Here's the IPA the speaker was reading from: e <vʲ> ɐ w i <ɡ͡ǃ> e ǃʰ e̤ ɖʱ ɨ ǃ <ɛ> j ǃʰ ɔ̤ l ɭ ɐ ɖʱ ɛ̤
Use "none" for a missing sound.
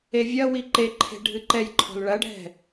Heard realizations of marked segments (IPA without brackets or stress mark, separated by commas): vʲ, ǃ, ɛ